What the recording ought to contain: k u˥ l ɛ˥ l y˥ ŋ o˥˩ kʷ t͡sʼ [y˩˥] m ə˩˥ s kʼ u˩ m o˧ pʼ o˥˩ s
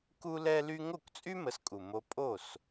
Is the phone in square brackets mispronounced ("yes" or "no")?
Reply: yes